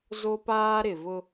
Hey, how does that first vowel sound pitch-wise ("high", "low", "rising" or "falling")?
high